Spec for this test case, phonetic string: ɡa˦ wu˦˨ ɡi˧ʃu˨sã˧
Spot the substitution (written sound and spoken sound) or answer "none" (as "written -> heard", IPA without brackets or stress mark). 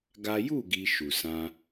w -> j